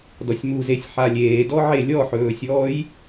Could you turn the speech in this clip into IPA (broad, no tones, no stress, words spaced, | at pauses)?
dɔsʲmuzesʲ ħalʲeːdɔʕe lʲɔħɵːsʲɔːj